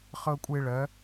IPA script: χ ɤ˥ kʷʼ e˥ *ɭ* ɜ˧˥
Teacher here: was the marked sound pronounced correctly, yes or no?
yes